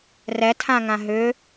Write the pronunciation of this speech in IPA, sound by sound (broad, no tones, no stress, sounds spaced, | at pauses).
r ɛ tʰ ã ŋ ã ɦ ʏ